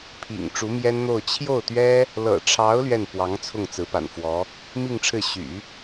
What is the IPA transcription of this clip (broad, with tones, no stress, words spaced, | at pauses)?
pʰḭ˨˩ŋ ʈ͡ʂu˧˥mjɛ˥nn̪o˥˧ʊ̯ t͡ɕʰjo˥˩ʊ̯t̪ɥɛ˥ | lɤ̰˨˩ʈ͡ʂʰɑ˧˥ʊ̯ lɥɛ˥˩n pwɑ˧˥ŋ t͡sʰʊ˥˩ŋt͡sɹ̩˧˥ pa̰˨˩nfwɔ˧˥ | mi˥˧ŋʈ͡ʂʰɻ̩˥˩ ɕy̰˨˩˦